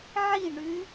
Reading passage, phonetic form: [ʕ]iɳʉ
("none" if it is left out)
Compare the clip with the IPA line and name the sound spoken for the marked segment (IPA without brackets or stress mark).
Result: ʕ